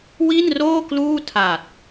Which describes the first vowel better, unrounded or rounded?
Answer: unrounded